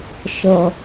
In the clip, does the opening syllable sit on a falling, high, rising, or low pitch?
high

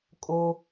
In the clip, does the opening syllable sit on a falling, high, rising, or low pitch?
high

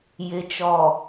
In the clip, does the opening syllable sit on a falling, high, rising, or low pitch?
low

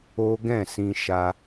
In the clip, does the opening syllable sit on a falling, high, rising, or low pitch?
high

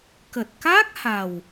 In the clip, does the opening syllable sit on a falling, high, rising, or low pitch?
low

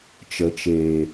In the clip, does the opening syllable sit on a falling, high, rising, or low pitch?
low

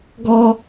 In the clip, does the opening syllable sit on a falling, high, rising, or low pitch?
high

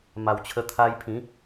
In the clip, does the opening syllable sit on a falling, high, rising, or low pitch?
low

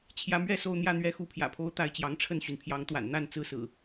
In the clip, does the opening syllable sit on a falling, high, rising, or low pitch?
rising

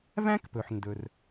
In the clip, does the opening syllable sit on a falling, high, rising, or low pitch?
high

